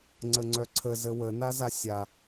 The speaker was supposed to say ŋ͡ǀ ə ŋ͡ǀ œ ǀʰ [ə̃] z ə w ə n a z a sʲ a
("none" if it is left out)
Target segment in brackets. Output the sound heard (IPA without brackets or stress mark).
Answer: ə